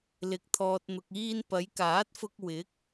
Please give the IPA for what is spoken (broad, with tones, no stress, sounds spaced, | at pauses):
l ɪ˨˥ k̚ t̪ʰ ɔː˨ t̚ n̪ ʊ˨ k̚ iː˧ n p ɐ˨˧ j k aː˨˥ t̚ f ʊ˧ k̚ w ɪ˨˥ k̚